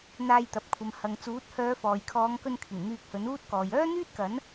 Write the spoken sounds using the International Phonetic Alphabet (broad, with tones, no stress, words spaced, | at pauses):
n̪aː˧jt̪ɐ˨p̚kʷʰɐ˨m hɐ˨ŋ t͡suː˨˥t̚ hœː˨˧fɔː˨jkʰɔː˨˧ŋkɵ˧n kʰɪ˨˩ŋ n̪yː˧k̚hɵ˨˥nuː˥t̚kɔː˨j œː˥n̪yː˥t̚kɐ˨˥n